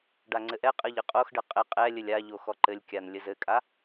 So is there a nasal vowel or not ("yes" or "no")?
no